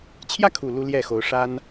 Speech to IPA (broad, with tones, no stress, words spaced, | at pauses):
t͡ɕʰjä˥˩kʰu˨˩ lu˥ ljɛ˥˩xo˧˥ʊ̯ʂa˥n